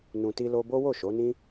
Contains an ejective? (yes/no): no